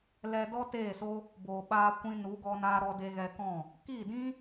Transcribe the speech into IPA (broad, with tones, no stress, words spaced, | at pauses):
lɛ˧dɔ˦teː˦˨so˦ | boː˨ɓaː˧kʷĩ˧nu˨˦ ɡɔ˧naː˧ɾɔ˧ de˧ɣɛ˧kɔ̃˦˨ | kiː˦˨dĩ˦